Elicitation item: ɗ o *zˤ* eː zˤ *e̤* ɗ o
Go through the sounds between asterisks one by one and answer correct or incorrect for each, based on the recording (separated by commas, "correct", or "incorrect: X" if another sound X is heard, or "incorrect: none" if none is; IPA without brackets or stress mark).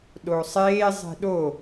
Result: incorrect: sˤ, correct